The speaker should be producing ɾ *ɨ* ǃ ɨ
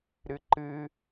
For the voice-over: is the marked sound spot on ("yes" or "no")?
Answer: yes